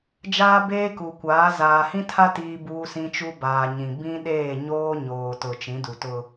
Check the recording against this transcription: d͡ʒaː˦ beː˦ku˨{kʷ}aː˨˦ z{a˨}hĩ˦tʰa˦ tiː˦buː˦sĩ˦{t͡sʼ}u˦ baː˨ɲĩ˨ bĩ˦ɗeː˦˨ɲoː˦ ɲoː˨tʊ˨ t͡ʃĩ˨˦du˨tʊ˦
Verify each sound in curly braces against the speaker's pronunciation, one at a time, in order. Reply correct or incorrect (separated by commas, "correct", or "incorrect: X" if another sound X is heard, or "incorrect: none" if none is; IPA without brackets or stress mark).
correct, incorrect: aː˨, incorrect: t͡ʃ